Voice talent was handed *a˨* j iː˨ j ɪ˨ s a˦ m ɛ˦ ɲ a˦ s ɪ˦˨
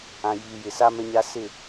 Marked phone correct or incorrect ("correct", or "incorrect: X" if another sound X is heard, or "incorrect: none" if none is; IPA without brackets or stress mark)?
incorrect: ã˨